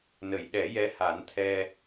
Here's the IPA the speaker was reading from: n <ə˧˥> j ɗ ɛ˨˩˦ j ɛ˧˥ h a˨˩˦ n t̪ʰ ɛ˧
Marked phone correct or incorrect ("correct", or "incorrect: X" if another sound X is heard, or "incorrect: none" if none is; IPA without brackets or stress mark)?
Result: incorrect: ə˨˩˨